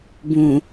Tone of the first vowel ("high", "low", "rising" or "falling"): low